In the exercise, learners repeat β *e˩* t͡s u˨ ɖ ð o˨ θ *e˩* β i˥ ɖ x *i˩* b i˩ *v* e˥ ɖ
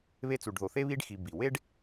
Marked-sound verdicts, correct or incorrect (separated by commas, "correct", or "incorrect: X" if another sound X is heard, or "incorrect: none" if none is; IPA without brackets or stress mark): incorrect: e˦, incorrect: e˥, incorrect: i˨, incorrect: w